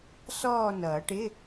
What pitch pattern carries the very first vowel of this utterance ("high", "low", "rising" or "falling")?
falling